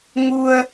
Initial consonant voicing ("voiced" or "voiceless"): voiced